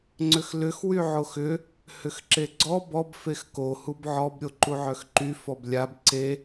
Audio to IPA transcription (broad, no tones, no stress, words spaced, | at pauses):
ŋ͡ǀʏxlʏx wyʕoxʏ | hʏxǁeɡ͡ǀɔ bɔb fexko hubʕɔb ɾʲoǃuʕœxǃy fɔblʲab ǀe